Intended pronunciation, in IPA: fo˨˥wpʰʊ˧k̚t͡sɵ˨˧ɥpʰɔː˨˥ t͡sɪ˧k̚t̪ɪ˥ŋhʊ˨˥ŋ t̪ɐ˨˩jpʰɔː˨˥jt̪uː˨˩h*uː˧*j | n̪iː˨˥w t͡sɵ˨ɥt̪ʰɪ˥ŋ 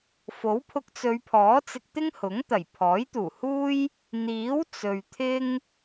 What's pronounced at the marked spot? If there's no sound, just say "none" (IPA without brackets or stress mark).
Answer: uː˥